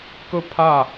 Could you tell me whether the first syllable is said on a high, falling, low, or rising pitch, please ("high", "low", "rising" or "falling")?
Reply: falling